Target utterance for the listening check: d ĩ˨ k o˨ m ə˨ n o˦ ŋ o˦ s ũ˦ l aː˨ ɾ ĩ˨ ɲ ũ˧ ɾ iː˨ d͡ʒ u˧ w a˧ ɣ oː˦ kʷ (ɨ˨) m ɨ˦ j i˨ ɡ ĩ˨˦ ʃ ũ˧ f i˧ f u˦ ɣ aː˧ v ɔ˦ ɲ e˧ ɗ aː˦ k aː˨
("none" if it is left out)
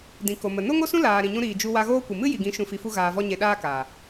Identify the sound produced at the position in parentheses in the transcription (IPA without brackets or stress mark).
ɨ˨